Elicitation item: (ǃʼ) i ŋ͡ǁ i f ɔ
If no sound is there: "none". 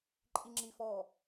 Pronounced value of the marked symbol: ǃʼ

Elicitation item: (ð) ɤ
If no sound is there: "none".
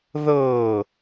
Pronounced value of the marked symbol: ð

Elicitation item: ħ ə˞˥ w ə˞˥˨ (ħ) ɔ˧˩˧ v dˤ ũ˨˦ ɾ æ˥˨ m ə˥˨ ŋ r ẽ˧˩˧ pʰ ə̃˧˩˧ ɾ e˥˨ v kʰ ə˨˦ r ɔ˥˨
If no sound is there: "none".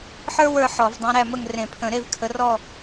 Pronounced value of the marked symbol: ħ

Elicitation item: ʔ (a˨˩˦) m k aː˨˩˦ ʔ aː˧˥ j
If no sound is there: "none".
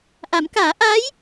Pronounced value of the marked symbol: a˨˩˦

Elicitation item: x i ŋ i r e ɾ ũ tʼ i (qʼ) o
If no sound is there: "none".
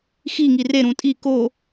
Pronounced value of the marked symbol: k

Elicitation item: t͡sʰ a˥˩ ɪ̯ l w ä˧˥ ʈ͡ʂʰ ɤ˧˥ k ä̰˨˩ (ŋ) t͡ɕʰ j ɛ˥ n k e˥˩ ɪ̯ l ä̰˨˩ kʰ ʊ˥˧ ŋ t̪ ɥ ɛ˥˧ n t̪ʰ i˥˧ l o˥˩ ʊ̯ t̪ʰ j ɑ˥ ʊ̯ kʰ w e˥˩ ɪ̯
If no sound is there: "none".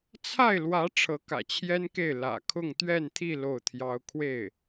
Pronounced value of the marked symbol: none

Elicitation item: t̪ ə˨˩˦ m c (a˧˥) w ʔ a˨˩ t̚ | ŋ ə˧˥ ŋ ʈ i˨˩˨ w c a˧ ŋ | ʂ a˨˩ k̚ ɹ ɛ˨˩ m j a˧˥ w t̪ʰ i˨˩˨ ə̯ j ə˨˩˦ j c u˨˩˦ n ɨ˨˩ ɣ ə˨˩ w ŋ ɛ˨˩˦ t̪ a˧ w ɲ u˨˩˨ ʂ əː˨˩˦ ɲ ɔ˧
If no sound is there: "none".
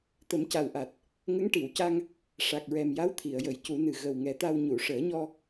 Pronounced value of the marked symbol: a˨˩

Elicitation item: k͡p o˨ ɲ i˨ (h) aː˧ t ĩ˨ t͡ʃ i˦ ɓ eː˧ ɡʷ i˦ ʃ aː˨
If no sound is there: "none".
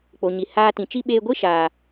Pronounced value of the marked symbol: h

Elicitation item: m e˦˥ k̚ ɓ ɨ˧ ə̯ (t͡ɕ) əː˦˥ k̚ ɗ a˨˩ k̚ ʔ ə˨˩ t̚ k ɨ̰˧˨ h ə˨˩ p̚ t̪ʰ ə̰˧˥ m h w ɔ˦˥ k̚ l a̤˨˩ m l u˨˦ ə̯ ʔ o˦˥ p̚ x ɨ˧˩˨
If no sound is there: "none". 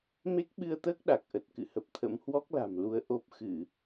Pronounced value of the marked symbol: t̪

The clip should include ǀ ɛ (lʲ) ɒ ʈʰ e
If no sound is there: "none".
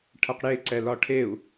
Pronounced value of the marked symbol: l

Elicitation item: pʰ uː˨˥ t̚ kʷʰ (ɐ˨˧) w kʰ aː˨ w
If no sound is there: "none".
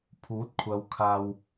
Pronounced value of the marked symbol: ɐ˨˧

